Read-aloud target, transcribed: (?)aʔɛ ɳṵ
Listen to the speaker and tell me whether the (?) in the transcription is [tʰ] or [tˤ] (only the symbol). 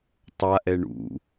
tˤ